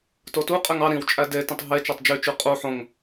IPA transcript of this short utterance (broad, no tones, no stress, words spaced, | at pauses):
totuqʼeŋ ɑ ɾĩwt͡ʃʼæ detĩtˤ ɦe t͡ʃɑtˤd͡ʒyt͡ʃy qʼu ħõŋ